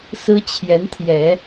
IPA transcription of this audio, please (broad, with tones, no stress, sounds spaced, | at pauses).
s ɹ̩˥ t͡ɕʰ j ɛ˧˥ n t̪ʰ j ɛ˨˩˦